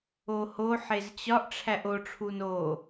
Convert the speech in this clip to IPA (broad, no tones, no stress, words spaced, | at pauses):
oho ħezt͡ɕɒʔ ʈ͡ʂʰæʔo ʈ͡ʂʰuno